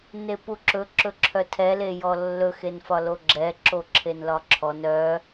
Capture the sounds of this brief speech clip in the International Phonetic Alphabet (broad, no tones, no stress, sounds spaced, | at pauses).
n e p u ǁ ɵ ǁ ɵ ǁʰ œ tʰ ɛ l e j ɔ lː ɵ x e n f ɒ l o ɡ͡ǁ ɛ ǁ o ǁʰ e n l ɒ ǁʰ ɔ n œ